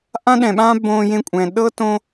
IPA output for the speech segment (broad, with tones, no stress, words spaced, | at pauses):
ʔã˦ɗɛ̃˨ɓãː˦ bõː˧jẽ˧kʷʼɛ̃˨ ɗɤ˦ tõ˦